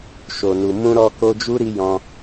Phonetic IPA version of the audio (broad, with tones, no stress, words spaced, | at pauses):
ʃo˨nu˨ mũ˧ɾɔ˧ko˧d͡ʒu˦ ɾi˦jɔ̃˧